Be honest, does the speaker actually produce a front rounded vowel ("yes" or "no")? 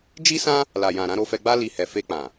no